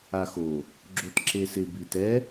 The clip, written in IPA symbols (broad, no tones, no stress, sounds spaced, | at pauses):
a x o | ɡ͡ǁ o t ǁ e s ɪ b i t ɛ